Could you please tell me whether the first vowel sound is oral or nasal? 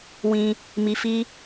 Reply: nasal